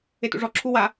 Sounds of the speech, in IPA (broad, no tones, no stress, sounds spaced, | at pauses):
e t ṵ ʐ ɔ ǁʰ u w a